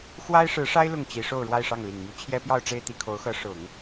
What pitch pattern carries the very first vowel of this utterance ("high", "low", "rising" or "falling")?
high